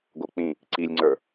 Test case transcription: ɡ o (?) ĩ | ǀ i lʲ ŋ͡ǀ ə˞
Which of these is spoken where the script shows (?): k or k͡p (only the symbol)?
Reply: k͡p